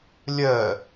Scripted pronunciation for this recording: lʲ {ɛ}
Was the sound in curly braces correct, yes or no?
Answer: no